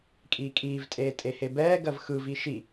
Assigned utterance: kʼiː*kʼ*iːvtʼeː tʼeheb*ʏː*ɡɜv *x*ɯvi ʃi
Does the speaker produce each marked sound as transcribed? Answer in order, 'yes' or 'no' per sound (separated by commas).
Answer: yes, no, yes